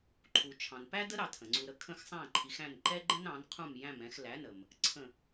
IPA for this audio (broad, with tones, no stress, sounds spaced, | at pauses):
ǃʰ u˩ t͡ʃʰ ɑ̃˩ n p æ˥ d ə˥ ɾ ɑ˥˩ tʰ ə̃˩ ŋ͡ǀ u˧ ɾ ə˥ kʰ ə̃˥˩ x sˤ æ̃˥˩ ǃʰ i˩˥ x æ̃˥˩ n ǃ ɛ˥ ɡ͡ǃ ə̃˥ n ɑ̃˩˥ n qʰ ũ˥˩ m j æ̃˥˩ m ɛ̃˧ x l æ˩˥ n ə˩ m | ǀʰ ə̃˥˩